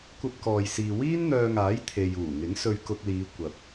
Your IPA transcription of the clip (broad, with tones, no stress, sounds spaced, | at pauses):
kʷ ɐ˧ p̚ k ɔː˨ j s iː˨ w iː˥ n n̪ œː˧ ŋ aː˨˥ j t̪ʰ e˨ j uː˨˩ ŋ ɪ˨˥ ŋ s ɵ˧ ɥ k ʊ˧ k̚ l iː˨˧ kʷ ɐ˨ p̚